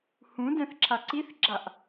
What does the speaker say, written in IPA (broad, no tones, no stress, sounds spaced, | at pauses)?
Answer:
h ũ d ɛ̃ θ ǁʰ a ǀ i θ ɡ͡ǁ a ʔ